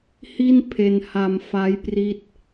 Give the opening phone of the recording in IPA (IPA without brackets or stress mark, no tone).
h